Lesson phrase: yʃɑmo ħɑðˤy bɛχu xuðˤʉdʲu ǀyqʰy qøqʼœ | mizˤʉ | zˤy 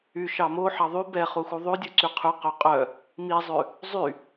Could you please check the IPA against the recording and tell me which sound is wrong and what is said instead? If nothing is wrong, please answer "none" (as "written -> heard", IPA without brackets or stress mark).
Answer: none